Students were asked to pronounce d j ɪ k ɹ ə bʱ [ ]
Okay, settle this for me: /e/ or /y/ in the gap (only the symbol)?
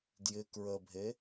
e